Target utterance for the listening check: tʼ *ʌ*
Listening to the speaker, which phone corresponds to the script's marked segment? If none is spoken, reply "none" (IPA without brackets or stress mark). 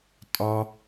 ɒ